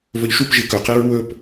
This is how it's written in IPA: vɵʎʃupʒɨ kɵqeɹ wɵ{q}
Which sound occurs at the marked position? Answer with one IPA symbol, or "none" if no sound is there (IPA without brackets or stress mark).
p